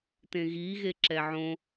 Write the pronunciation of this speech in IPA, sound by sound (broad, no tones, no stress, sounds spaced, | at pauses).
t ẽ ɣ i ɣ e ǁ ɛ ʕ õ